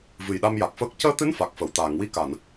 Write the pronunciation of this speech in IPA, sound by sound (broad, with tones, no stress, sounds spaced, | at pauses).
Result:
v ɨ˨˩ j ɗ a˧ m j a˨˩ k̚ f əː˦˥ k̚ c əː˧ t̪ ɨ˧˥ n f a˨˩ k̚ f ə˨˩˨ w t̪ aː˨˩˨ ŋ w i˧ k a˨˩˨ n